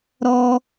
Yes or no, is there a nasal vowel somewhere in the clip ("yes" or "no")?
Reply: no